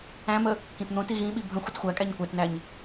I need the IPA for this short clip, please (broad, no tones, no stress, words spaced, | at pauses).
æ̃mə | kĩtn̪õti ɣĩɓi bʱə̃ xʷətxʷækʼæɲ kʷætnæɲ